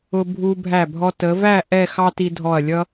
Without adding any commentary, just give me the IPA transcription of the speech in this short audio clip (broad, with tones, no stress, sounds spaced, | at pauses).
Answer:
ʊ˧ bʱ u˧ bʱ æ˧˩ bʱ ɔ˧ t ə˩˧ v æ˥˧ ʔ ɛ˥˧ x ɑ˥ t i˧ dʱ ɔ˧˩ ɐ̯ lʲ ʌ˥